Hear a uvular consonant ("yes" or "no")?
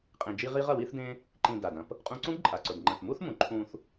yes